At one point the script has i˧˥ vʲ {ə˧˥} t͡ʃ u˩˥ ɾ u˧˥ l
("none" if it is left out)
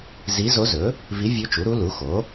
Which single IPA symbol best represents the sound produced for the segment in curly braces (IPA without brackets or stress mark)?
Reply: ɵ˧˥